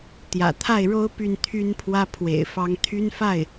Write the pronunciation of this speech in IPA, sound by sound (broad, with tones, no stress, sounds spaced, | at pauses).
t̪ j ä̰˨˩ t̪ʰ a˥˩ ɪ̯ ɻ o˥ ʊ̯ p y˥˩ n t̪ʰ y˥ n pʰ w ä˥ pʰ w ḛ˨˩ ɪ̯ f ɑ˧˥ ŋ t̪ʰ y˥ n f a˥˩ ɪ̯